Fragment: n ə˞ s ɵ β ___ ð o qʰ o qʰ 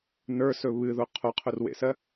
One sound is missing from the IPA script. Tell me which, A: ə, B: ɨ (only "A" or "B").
B